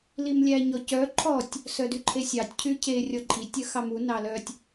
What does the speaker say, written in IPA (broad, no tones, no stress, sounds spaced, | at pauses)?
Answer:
l i m lʲ æ ɲ ɔ c œ ǃʰ ɔ tʲ | s œ d y ǃʰ e sʲ ɑ tʲ cʰ y cʰ e rʲ ɔ ǃʼ i tʲ œ x ɑ m u n ɑ l œ tʲ